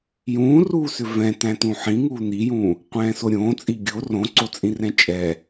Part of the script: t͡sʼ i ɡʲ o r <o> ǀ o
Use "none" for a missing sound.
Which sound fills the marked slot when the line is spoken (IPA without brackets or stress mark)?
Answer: õ